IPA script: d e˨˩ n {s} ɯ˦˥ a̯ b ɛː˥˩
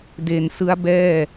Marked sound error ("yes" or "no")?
no